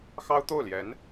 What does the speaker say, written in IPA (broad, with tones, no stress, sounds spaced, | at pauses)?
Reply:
x ɑ˥ ʊ̯ t̪ o˥˩ ʊ̯ l j ɛ˧˥ n